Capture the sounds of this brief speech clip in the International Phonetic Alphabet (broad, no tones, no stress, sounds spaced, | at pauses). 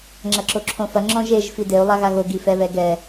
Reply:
ŋ͡ǁ ɐ ǁ o ǁʰ õ f ɐ ŋ͡ǁ ɔ̃ ʒ e ʒ f i d e u̯ lˠ a ɣ a ɣ o ɡ i f ɛ β ɛ ɡ ɛ